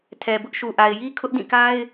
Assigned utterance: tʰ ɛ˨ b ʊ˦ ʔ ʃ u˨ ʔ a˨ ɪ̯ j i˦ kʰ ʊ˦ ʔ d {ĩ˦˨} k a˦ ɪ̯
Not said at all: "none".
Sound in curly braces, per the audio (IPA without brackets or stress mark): ĩ˦˨